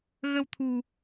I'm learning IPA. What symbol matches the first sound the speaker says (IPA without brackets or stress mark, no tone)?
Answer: ɣ